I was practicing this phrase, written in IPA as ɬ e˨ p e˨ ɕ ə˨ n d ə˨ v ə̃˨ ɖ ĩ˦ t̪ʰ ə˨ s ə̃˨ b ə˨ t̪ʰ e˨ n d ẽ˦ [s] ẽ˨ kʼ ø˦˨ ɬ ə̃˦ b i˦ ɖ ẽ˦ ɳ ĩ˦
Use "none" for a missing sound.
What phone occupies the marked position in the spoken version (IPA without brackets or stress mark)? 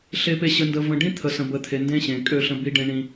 ɕ